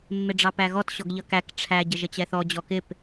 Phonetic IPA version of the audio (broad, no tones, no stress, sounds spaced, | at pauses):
mː ɪ ɖ͡ʐ ɑ p æ ɣ ɔ t ɕ ɔ ɡ ʎ ʌ k æ k ʈ͡ʂʰ æ ɟ ə ʒ ə t͡ɕ ɛ θ ɔ d͡ʑ ɔ k ɪ p